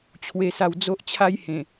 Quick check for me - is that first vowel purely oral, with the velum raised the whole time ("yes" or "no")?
yes